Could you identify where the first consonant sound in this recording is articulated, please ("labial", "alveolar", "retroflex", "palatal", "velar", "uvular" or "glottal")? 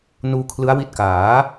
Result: alveolar